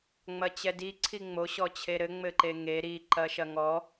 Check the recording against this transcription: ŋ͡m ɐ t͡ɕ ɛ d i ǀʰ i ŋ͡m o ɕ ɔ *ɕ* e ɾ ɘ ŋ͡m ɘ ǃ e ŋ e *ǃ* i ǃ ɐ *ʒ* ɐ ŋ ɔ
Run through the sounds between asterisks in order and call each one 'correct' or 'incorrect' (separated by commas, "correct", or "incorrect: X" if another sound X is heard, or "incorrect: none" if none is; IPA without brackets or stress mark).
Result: incorrect: t͡ɕʰ, incorrect: ɾ, incorrect: ʃ